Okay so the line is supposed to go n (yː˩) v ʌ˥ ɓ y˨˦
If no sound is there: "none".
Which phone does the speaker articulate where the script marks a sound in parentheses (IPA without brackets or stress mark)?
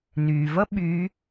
yː˩